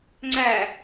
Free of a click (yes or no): no